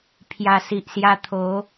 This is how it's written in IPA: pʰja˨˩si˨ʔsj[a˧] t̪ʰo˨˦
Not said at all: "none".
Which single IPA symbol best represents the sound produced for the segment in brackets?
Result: a˧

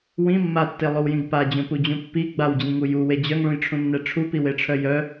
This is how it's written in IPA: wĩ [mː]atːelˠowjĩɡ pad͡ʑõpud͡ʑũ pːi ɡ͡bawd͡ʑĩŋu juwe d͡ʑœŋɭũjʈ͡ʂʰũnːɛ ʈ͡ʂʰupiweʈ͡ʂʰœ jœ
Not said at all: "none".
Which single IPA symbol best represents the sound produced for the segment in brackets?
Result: mː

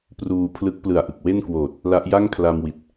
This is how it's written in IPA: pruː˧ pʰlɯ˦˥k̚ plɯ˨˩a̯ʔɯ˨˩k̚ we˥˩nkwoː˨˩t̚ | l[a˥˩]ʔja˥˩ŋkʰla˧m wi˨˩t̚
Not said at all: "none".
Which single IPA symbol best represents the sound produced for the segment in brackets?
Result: a˦˥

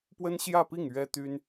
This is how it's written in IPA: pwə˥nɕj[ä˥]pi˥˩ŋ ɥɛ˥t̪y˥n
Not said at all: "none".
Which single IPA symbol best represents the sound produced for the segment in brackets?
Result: ä˥˧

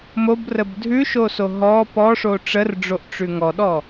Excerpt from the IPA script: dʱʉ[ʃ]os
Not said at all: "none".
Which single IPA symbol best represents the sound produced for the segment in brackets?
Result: ʃ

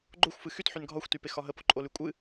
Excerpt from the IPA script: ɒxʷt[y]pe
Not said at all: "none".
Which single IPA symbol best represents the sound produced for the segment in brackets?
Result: y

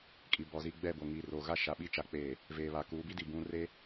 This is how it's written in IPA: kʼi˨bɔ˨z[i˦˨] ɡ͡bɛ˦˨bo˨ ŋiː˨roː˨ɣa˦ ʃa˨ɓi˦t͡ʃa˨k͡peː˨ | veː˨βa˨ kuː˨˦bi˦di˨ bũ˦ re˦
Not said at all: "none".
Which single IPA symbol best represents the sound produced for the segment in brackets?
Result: i˦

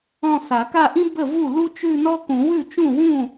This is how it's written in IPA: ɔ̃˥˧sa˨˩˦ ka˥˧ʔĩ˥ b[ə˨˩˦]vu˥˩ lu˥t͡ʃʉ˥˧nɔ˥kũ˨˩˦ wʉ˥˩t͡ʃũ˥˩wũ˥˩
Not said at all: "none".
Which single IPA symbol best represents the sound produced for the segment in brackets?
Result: ə˥˩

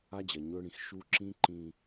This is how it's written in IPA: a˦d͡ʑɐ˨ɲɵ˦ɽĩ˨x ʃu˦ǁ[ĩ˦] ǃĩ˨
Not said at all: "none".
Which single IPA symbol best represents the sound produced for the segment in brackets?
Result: ĩ˦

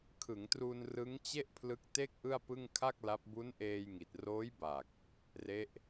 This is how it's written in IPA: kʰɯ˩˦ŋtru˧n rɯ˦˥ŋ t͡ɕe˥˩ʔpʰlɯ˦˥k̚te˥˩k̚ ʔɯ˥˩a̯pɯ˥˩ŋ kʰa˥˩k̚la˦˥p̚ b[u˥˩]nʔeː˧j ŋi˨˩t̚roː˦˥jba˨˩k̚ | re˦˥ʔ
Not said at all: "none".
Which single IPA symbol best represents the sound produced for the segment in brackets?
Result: u˦˥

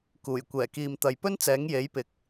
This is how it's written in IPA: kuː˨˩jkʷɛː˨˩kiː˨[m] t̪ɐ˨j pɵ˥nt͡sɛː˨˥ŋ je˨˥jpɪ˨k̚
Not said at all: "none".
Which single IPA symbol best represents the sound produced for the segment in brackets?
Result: m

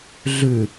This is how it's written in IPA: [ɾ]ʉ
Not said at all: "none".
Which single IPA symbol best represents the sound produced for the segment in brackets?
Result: ɮ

